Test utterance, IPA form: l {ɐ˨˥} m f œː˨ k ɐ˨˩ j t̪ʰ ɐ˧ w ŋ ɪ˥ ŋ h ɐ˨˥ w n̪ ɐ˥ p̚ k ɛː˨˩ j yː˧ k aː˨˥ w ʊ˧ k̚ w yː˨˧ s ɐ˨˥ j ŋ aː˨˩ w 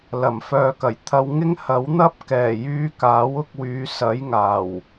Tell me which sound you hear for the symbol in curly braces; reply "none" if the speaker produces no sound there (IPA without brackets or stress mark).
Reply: ɐ˨˩